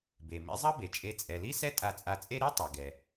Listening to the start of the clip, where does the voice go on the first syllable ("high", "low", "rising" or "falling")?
low